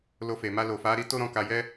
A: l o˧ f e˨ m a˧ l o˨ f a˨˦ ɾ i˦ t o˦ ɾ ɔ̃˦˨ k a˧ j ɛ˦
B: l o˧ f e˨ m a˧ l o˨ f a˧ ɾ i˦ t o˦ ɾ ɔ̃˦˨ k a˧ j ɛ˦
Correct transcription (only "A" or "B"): A